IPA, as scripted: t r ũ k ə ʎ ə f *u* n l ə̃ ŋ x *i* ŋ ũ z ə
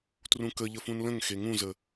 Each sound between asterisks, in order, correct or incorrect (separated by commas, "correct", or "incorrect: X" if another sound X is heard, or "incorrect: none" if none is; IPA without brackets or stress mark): incorrect: ũ, incorrect: e